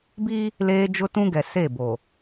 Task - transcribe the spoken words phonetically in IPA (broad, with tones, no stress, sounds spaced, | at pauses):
b i˦ | l eː˦ d͡ʒ ʊ˦ t ũ˦ ɡ ɛ˨ s e˦˨ b o˨